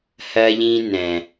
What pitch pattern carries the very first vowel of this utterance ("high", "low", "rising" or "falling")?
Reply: high